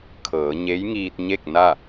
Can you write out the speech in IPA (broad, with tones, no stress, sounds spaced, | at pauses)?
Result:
kʰ ɤː˩˧ ɲ e˧˥ j ŋ iː˧ t̚ ɲ e˥˨ k̚ n a˥˨